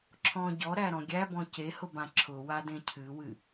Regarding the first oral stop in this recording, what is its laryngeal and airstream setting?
click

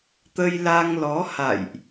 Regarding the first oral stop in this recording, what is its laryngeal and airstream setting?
plain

